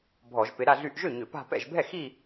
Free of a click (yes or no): yes